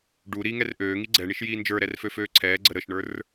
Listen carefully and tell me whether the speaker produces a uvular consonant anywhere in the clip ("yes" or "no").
no